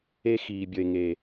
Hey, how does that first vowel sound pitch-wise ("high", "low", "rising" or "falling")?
high